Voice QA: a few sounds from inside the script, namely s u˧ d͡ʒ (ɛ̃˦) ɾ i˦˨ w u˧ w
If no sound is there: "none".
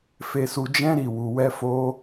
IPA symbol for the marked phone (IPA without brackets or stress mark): ɛ̃˦